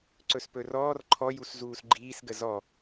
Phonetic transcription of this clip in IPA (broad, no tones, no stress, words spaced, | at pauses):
ǀɵspɵrɔːr ǃʰɔjus zuːsɡ͡ǃiːsɡə zɔ